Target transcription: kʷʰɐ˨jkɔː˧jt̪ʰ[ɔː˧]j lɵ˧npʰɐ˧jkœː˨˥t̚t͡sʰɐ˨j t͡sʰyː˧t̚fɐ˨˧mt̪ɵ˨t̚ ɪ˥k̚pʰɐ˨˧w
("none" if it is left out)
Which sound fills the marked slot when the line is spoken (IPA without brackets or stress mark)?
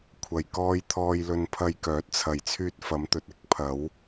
ɔː˧